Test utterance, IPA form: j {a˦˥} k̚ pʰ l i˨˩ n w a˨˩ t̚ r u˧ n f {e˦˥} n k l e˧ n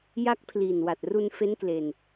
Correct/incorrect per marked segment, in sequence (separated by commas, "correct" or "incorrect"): correct, correct